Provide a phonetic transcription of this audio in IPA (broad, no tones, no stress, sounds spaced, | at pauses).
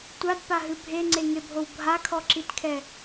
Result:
tʷ a d p a ɦ ɨ bʱ e ŋ͡ǀ e ŋ e bʱ o w bʱ a kʰ ɔ ǁ i t kʰ ɛ